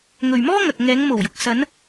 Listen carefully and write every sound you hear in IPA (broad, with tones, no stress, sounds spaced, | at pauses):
ŋ ɵ˨ ɥ m ɔː˥ ŋ ɐ˨ k̚ ŋ ɛː˨˧ ŋ m o˨˩ w j ʊ˨ k̚ s ɐ˨˧ n